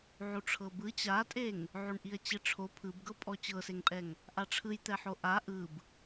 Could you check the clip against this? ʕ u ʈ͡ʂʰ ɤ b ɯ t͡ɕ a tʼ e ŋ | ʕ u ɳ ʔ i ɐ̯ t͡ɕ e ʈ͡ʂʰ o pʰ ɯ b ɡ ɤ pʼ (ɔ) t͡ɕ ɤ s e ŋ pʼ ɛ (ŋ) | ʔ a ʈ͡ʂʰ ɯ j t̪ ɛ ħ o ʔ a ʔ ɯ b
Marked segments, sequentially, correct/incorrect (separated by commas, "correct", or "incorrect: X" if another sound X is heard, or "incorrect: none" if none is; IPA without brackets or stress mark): correct, correct